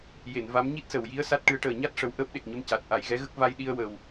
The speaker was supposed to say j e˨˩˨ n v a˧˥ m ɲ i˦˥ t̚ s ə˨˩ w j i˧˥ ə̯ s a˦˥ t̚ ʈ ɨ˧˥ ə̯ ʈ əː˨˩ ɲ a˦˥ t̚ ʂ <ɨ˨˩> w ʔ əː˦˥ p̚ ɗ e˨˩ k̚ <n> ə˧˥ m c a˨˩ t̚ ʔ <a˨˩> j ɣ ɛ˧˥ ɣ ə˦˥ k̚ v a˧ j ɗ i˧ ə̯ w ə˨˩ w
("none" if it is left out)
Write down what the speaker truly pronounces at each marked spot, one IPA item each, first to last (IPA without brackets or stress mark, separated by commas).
ə˨˩, ɲ, a˨˩˨